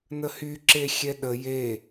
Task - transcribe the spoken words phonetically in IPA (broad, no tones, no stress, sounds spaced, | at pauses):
n ə h y ǁ e xʲ ɛ ɗ ə j e